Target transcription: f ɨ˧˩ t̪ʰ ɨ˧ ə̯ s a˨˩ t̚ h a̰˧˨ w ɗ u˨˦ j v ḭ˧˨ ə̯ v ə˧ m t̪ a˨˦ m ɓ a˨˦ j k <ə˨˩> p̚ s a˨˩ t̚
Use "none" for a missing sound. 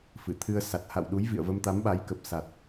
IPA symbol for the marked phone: ə˨˩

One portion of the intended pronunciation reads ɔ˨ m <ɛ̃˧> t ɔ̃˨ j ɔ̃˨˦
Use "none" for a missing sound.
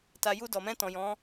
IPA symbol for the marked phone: ɛ̃˧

